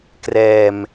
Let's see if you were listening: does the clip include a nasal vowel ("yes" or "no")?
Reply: no